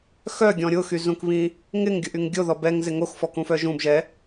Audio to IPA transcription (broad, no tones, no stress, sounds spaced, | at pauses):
x œ ɡʲ ɔ̃ ɾʲ ʊ x y z ũ k β ĩ | ŋ ɪ ŋ ɡʲ ʊ ʔ y ŋ ɡʲ o ð ɔ b ɛ ŋ z ɪ ŋ o x f ɔ k ũ f œ ʒ ũ b ʒ ɛ